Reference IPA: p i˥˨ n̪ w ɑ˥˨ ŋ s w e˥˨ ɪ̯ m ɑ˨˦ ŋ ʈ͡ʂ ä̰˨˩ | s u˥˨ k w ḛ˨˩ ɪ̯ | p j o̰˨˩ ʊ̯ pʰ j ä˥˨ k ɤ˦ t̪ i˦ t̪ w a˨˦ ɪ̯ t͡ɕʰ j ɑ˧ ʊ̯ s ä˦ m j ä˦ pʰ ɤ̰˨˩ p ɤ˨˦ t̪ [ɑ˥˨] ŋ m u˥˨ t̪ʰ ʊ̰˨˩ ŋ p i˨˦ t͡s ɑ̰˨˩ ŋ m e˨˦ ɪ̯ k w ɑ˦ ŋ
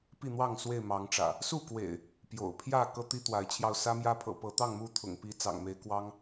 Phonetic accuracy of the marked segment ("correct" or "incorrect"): correct